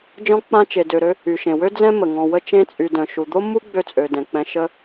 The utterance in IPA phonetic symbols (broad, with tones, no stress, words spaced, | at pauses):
d͡ʒɔ̃˦ k͡pã˦t͡ʃe˨ dø˨ɾø˦ | y˩ʃẽ˩wø˥ d͡zɛ̃˥mə˩ŋɔ̃˨wə˦ t͡ʃẽ˦t͡sʼy˨ dœ̃˨ ʃu˨d̪o˥mːu˥ ɡ͡bø˥t͡sʼø˨ dɛ̃˨k͡pɛ̃˥ ʃə˥